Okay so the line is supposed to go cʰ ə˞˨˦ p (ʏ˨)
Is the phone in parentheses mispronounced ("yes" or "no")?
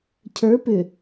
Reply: no